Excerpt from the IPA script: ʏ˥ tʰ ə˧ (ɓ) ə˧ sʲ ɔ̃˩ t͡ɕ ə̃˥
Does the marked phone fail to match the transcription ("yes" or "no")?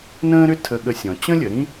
yes